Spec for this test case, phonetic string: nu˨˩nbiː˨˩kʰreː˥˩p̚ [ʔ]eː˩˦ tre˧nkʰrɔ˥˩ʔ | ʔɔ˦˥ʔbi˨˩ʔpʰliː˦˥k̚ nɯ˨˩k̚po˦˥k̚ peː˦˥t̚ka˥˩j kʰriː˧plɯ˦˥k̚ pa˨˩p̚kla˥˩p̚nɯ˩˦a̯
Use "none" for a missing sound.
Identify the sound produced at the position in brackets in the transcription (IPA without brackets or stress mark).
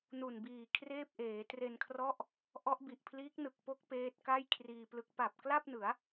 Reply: ʔ